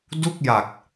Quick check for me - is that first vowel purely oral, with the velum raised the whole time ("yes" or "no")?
yes